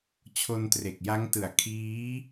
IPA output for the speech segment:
t͡ɕʰ o˧ n t r e˨˩ k̚ j a˦˥ ŋ t ɯ˨˩ a̯ kʰ iː˦˥

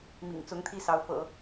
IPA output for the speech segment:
m ḭ˨˩ ŋ t͡s ʊ˧˥ ŋ t̪ʰ i˥˩ s ɑ˧˥ ʊ̯ f ɤ̰˨˩˦

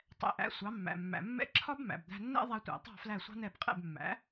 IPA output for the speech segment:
tˤ ɛ̰˩˥ ʔ æ̰˩˥ sʷ ɑ˩˥ mː æ̰˩ mː æ̰˩ mː ɛ̰˥ ǁʰ ɒ˥ b m æ̰˩ b d̪ æ̤˧ nː ɛ̰˥ ðˤ æ˧ tʷ æ̰˩ tˤ ɑ̤˥˩ f l æ˥˩ sʷ ɑ̤˥ n̪ ɛ˥˩ b qʼ ɛ̰˥˩ b mː æ̰˩˥

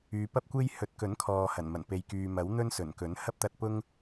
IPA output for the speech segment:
yː˨˧ p ɐ˥ p̚ kʷ e˥ j h ɵ˨˥ t̚ k ɵ˨˥ n kʰ ɔː˨ h ɐ˨˩ n m ɐ˨˩ n p e˨ j k yː˨ m ɐ˨˥ w n̪ ɵ˥ n s ɵ˨˩ n k ɵ˨˥ n h ɐ˥ p̚ t̪ ɐ˧ t̚ p ʊ˥ ŋ

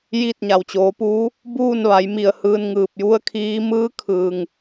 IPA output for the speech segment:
j i˥˨ t̚ ɲ a˩ w t͡ɕ oː˩˧ p uː˧˥ | b uː˥˨ n ʋ a˩˧ j m i˧˩ ə̯ h ɯː˧ n ŋ ɯː˧˩ p̚ j u˧˥ ə̯ kʰ iː˧˥ m ɯː˧˥ kʰ ɯː˩ ŋ

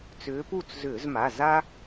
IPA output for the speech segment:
t͡s ʏː˨˦ p u˥˩ t͡s z ʏː˧˩˧ z m a˩˧˩ z a˦

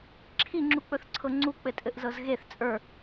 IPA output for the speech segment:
ǁʰ i ŋ͡ǁ u k͡p ɵ θ ǀʰ ɤ ŋ͡ǀ u k͡p ɘ tʼ ɘ ʔ z ɤ z ɣ e θ t͡sʼ ə˞

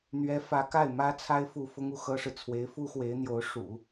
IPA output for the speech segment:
n̪ ɥ ɛ˧˥ f ä˧˥ k a˥˩ ɪ̯ m ä˥ t͡sʰ a˥ ɪ̯ f u˥˩ f ʊ˥ ŋ u˥˩ x ɤ˥ ʂ ɻ̩˨ t͡sʰ w e˧˥ ɪ̯ f u˥ x w e˧˥ ɪ̯ n̪ j o˧˥ ʊ̯ ʂ ṵ˨˩˦

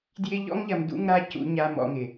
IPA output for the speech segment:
d j ɪ˧ ʎ ɔ̰˥ ŋ ʎ ɐ˧ m d ṵ˧ ŋ ɾ a˧ c ṵ˧ ɲ a˧ m ɔ̰˧ ŋ ɪ˩

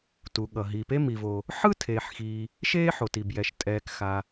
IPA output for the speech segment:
t u˩ ɠ ʌ˩ ɦ iː˩ p e˥ m i˩ v o˩ | ħ ɯ˥ tʰ eː˩ ħ x iː˩ | ʃ eː˥ ħ o˩ t i˩ b j ɛ˩ ʃ tʼ ɛː˩ k x a˩

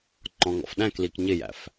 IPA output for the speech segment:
ŋ͡ǃ ɔ̃ ŋ ɔ̰ f ɗ æ̃ k l i k ɲ ɪ j æ̰ f

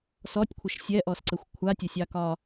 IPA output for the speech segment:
s ɔ tʲ kʷʰ ə ʃ sʲ ɛ ʔ ɔ s ǀ ə xʷ kʷʰ a tʲ ɛ sʲ ɑ k ɒ

